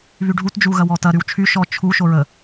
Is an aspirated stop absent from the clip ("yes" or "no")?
no